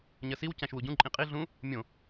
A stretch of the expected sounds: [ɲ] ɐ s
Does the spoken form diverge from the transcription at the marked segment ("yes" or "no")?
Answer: no